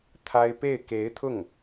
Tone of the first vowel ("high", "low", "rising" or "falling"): high